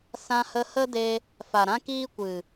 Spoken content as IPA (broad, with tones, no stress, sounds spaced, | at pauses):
s ã˧ h ə˧ h ə˦ d e˧ | f a˨ ɾ ã˦ k iː˦ kʷ ɨ˨